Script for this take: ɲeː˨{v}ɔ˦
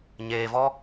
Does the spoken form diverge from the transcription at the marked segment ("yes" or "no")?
no